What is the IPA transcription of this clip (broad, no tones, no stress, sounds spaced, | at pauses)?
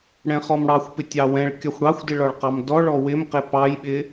ɽ ɛ̃ χ ɔ m ɽ ɑ xʷ p ɪ tʲ ɑ w ɛ̃ ɭ kʲ ɒ xʷ ɽ ɑ xʷ d ɪ ɭ ɒ ɭ q ɑ m d ɔ ɭ ɔ w ɪ m q ɪ p ɑ j ɓ ɪ